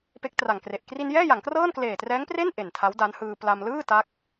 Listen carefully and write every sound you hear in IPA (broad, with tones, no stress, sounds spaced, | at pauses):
p e˦˥ k̚ t r a˨˩ ŋ k r e˨˩ ʔ k r i˧ n j ɛː˥˩ j a˩˦ ŋ k r ɤː˥˩ n k l eː˨˩ t r ɛː˦˥ ŋ p r e˥˩ n ʔ e˨˩ n tʰ a˦˥ w d a˦˥ n h ɯː˧ p l a˧ m l ɯː˥˩ t a˦˥ k̚